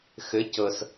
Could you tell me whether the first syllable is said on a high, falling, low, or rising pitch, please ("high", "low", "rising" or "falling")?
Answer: rising